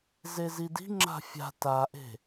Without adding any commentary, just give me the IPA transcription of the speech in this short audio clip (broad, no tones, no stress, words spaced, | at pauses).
zezidi̤ŋ͡ǁa̤ fʲa̤ taʔe̤